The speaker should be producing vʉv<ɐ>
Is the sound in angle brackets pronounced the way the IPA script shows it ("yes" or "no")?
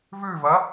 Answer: yes